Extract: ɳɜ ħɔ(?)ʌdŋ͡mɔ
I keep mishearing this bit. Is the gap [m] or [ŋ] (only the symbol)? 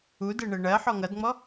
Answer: ŋ